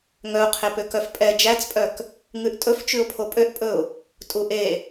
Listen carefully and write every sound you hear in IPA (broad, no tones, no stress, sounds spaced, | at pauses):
ŋ œ ʊ̯ qʰ e p ø k œ f pʼ ɛ d͡ʒ æ t͡s pʼ œ k | ŋ ʉ ʔ tʼ ɵ f t͡ʃ ʉ ʊ̯ pʰ o pʼ ø ʔ pʼ ɵ ʊ̯ | tʼ u ʔ e